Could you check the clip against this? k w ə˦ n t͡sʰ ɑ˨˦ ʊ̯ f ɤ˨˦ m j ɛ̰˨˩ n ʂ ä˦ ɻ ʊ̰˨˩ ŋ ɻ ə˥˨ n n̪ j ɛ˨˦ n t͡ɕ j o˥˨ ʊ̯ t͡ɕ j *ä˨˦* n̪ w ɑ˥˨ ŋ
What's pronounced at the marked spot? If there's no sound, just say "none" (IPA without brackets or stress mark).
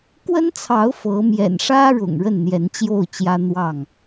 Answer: ä˦